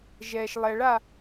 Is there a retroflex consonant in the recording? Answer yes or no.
yes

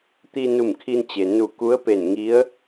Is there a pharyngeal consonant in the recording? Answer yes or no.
no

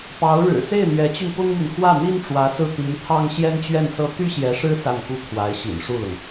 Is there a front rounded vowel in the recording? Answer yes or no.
yes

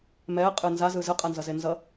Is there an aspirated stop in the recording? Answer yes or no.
no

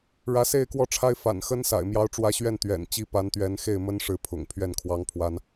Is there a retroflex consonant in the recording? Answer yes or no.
yes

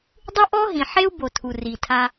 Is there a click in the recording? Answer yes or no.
no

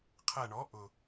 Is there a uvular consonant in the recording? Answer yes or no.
yes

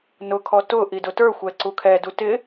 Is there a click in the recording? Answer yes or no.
yes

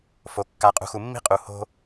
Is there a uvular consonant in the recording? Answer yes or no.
yes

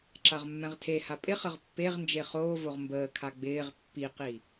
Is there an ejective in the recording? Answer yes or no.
yes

